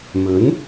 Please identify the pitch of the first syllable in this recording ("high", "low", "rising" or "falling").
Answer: rising